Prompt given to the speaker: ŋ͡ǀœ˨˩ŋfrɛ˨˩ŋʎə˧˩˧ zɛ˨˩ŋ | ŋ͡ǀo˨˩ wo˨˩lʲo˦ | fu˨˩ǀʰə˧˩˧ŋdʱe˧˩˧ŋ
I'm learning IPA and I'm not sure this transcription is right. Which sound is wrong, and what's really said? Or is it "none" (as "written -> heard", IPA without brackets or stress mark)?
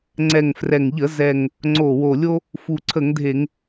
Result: œ˨˩ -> ɛ˨˩